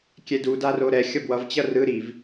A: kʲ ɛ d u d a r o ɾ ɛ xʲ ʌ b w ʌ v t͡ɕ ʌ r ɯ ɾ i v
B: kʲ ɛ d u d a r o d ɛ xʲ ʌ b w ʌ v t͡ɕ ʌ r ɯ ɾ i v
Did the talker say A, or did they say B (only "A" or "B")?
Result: A